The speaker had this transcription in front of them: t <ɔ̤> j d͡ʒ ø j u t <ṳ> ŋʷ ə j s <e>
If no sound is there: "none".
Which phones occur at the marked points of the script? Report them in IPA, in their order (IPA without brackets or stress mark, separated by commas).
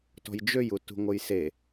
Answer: ɔ̤, ṳ, e